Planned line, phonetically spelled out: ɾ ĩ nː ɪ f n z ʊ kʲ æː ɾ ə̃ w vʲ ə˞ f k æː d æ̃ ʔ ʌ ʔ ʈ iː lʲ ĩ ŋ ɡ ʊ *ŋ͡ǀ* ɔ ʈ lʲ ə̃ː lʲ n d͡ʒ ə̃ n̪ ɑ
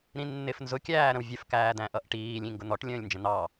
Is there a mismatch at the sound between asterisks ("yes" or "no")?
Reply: yes